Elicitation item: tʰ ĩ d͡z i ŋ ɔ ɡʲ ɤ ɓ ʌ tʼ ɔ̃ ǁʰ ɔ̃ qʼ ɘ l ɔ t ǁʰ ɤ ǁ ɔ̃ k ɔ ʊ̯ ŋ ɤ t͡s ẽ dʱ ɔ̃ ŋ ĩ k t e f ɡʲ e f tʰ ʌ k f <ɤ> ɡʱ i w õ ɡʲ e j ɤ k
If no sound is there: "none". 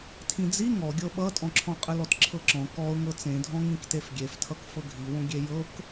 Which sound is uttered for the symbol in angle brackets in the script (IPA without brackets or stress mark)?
ɤ